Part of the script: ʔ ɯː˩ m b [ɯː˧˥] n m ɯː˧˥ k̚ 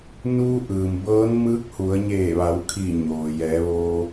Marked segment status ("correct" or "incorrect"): incorrect